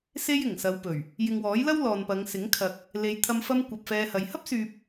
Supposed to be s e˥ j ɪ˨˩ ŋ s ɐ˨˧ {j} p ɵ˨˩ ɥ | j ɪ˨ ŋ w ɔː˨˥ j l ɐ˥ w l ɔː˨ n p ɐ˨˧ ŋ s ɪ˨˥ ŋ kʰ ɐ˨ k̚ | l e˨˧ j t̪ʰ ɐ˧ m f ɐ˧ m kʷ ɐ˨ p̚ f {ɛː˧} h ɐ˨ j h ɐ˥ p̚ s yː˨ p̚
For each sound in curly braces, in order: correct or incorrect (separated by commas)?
incorrect, correct